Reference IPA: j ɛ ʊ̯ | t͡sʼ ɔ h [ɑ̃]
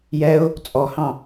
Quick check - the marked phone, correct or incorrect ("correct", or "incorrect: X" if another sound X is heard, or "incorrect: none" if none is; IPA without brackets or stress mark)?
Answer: correct